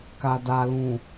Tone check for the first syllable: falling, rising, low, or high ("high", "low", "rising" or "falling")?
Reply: low